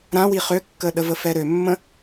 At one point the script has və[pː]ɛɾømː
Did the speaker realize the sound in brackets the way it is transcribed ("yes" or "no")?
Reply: no